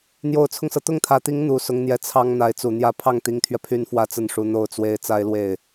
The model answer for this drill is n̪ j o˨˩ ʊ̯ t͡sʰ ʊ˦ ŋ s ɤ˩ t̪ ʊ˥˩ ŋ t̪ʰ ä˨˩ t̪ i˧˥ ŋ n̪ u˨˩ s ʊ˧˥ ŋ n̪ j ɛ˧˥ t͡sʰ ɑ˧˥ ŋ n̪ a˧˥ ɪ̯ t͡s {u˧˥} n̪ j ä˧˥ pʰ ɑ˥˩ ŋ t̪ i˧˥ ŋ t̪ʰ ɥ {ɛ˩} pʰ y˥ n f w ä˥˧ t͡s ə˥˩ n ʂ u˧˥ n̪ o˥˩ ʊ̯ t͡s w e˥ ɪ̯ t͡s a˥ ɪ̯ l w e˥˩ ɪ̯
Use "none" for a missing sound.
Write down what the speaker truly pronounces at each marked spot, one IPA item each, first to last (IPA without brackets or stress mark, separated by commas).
u˨˩, ɛ˧